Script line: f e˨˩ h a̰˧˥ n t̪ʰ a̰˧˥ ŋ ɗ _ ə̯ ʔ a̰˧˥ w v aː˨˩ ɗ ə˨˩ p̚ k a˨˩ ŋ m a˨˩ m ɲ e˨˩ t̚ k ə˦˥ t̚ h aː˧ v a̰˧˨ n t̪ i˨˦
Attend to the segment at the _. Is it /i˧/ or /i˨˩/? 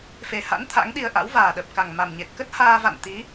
i˧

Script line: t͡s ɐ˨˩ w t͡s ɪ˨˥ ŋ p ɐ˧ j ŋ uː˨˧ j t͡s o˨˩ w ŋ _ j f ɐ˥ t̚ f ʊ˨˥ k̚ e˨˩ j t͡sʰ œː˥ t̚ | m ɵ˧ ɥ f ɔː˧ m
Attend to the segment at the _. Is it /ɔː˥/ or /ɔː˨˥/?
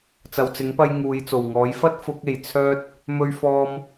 ɔː˨˥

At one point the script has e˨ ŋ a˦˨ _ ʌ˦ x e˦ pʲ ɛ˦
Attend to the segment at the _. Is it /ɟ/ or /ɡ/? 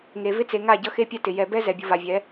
ɟ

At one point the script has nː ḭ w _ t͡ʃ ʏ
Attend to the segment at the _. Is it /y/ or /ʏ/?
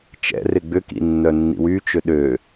y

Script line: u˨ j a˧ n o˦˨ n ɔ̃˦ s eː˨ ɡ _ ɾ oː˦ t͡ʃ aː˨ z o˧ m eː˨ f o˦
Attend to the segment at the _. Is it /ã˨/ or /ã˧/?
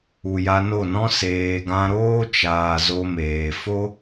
ã˧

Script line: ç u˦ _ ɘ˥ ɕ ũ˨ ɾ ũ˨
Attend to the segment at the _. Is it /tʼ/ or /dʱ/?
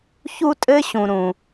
tʼ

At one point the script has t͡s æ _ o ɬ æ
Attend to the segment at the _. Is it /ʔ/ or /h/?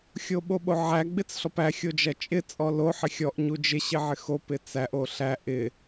ʔ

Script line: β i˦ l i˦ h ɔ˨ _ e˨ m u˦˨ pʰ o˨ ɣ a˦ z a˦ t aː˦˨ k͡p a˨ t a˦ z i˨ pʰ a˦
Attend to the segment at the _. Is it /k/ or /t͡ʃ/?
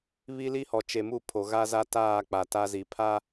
t͡ʃ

